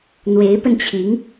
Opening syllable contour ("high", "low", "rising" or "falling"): rising